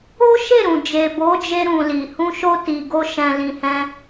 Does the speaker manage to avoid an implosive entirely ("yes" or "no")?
yes